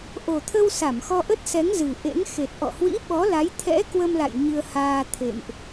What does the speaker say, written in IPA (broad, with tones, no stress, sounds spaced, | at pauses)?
ʔ o˨˩ t̪ʰ ə˧ w s a˧˩ m x ɔ˧ ʔ ə˦˥ t̚ s ɛ˨˦ ŋ z ɨ˨˩ ʔ ḛ˧˥ ŋ x e˨˩ t̚ ʔ ɔ̰˧˨ h w ḭ˧˥ ɓ ɔ˨˦ l a˨˦ j t̪ʰ ɛ̰˧˥ k w ə˧ m l a̰˧˨ j ɲ ɨ˧ ə̯ h aː˧ t̪ʰ ḛ˧˨ m ʔ